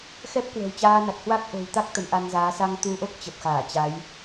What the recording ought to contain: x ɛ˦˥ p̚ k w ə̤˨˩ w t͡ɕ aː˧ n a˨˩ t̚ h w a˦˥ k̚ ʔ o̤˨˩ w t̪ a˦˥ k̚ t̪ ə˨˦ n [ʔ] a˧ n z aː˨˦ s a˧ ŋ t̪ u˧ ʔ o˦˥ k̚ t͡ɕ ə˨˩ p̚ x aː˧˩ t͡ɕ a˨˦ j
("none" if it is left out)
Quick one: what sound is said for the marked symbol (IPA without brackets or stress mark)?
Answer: ʔ